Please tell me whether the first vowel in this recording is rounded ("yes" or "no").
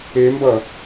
no